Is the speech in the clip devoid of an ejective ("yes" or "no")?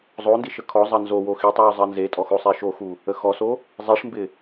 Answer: no